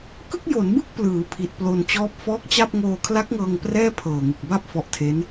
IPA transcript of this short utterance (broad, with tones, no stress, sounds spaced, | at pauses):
k ɯ˥˩ k̚ j o˩˦ n b ɯ˥˩ k̚ p l ɯː˩˦ pʰ i˨˩ t̚ p l o˧ n t͡ɕ ɔː˦˥ p̚ f ɔː˦˥ k̚ t͡ɕ a˥˩ p̚ ŋ oː˧ kʰ l a˦˥ k̚ ŋ ɤː˧ ŋ p r ɛː˥˩ pʰ ɤː˨˩ ŋ ɯ˨˩ k̚ b a˥˩ p̚ f ɔ˦˥ ʔ tʰ e˦˥ n